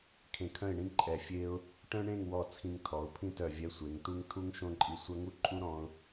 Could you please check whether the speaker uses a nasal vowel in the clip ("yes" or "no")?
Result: yes